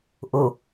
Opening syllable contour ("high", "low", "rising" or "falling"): low